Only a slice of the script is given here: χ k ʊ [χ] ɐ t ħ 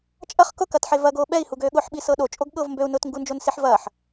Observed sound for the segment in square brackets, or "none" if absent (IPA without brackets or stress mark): k